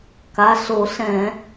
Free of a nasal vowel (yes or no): no